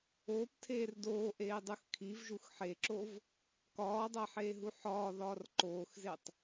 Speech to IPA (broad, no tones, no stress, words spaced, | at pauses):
oːptʰeːr doːʔeːdˤux kʰivʒux ħeǁov | kɒːdˤæħeːɦu ħɒːðɒːr ǃoːxzetˤ